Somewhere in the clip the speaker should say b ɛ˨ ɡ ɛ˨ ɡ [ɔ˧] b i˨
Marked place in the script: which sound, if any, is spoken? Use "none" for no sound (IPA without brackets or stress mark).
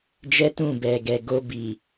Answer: o˧